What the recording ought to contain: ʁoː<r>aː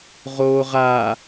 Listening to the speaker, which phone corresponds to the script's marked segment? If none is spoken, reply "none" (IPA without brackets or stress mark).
ʁ